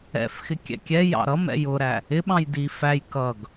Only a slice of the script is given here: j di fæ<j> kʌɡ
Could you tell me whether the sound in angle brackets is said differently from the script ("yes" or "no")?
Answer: no